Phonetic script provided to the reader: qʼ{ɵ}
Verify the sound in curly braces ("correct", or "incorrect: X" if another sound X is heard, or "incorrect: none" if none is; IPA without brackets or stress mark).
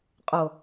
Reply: incorrect: o